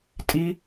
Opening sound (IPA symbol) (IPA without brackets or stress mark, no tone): tʼ